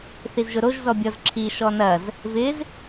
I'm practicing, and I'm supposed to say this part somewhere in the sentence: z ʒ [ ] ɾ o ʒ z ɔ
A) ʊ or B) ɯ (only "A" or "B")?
A